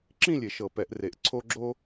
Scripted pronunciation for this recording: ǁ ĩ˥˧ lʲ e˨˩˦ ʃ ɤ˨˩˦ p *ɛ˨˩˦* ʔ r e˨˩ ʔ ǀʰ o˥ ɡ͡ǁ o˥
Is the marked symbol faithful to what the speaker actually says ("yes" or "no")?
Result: yes